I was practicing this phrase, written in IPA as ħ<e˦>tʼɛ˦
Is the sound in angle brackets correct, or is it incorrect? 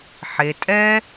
incorrect: e˨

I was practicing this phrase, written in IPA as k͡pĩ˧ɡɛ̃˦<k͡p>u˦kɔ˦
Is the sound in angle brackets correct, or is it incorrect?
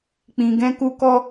incorrect: k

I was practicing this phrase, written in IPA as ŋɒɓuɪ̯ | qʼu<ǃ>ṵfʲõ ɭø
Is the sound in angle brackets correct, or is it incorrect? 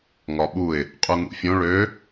incorrect: ŋ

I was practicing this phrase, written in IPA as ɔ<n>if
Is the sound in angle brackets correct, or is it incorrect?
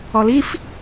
incorrect: l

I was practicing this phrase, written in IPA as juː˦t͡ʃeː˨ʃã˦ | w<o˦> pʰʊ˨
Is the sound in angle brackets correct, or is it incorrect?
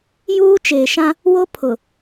correct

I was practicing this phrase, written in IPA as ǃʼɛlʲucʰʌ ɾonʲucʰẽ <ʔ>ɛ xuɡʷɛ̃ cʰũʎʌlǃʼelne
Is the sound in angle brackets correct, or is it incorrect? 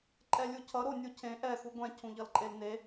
correct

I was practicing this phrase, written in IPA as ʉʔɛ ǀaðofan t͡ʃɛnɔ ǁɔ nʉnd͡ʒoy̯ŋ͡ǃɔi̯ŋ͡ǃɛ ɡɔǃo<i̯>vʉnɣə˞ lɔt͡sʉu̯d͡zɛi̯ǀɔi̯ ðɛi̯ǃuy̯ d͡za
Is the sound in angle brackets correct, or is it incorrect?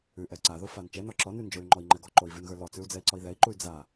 correct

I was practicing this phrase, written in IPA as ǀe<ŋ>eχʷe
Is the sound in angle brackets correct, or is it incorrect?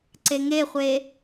correct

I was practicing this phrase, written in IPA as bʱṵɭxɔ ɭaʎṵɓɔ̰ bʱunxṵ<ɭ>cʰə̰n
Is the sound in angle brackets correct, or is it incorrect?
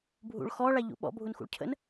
correct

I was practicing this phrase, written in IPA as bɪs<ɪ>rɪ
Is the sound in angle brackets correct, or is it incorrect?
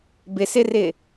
correct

